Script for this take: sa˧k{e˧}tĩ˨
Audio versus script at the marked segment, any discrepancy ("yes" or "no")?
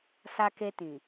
no